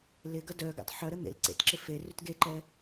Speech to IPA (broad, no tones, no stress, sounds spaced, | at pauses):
l ɪ ɡ ɐ d œ ɡ ɛ̰ tˤ ħ œ ɾ ə n̪ ḛ l ǀ ḛ t ǁ ɪ f e r ʉ t ɡ e ǃ ɛ